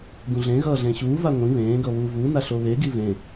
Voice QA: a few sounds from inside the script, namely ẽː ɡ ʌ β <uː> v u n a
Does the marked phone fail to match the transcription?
no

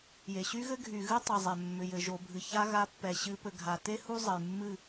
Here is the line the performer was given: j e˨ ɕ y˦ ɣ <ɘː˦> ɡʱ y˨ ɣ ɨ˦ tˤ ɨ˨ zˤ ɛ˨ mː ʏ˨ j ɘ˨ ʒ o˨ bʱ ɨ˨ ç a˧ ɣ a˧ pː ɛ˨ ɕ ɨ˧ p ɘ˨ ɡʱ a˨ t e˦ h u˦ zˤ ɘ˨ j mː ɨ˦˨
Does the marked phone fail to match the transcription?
yes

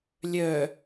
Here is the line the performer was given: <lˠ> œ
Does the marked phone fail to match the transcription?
yes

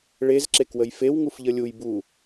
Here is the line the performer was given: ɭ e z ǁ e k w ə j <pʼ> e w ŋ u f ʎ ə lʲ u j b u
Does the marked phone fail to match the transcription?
yes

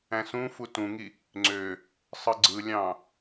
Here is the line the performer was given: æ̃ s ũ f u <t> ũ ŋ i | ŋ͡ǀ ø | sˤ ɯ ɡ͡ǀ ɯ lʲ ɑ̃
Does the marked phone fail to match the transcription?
no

